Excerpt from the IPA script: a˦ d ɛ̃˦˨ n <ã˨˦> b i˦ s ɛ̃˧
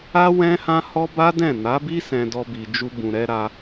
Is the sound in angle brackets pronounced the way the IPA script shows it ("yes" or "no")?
no